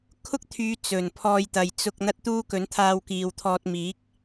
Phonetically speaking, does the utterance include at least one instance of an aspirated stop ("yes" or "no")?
yes